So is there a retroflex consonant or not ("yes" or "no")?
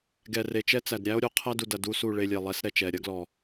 yes